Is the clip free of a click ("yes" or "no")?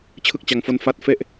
yes